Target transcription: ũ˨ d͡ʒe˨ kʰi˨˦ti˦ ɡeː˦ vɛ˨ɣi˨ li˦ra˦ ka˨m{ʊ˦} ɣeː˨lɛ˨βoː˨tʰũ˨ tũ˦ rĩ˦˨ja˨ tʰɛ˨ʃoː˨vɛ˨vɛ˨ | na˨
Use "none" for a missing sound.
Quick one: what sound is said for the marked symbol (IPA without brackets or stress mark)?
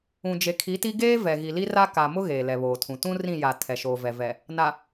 ʊ˦